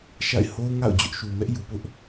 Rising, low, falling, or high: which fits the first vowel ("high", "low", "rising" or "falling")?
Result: falling